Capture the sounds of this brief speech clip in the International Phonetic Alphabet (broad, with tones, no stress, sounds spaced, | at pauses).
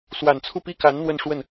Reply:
s w a˨˩ n t͡sʰ u˥˩ p i˥ k a˧˥ n n̪ w ə˥˧ n ʂ w ə˥˩ n